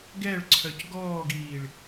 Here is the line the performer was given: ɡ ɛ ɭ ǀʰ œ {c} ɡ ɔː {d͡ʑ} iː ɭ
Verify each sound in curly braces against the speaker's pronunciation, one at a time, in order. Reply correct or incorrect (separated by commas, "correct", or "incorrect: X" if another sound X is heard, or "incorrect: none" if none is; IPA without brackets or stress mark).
correct, incorrect: ɡ